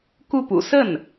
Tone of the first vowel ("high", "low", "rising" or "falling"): falling